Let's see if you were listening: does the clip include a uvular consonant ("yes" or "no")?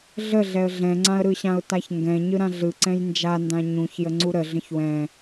no